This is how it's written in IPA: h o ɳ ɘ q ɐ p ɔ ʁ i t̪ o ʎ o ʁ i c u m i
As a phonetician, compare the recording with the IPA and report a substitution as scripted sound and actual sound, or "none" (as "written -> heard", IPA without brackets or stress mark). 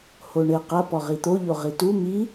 c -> t